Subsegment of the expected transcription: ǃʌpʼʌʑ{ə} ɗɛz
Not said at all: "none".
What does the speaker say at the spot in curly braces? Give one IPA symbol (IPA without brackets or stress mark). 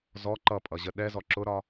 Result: ə